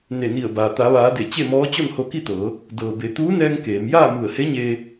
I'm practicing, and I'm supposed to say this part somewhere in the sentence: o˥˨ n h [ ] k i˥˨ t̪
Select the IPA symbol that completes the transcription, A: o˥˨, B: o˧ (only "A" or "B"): B